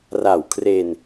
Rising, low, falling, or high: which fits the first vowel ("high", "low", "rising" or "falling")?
low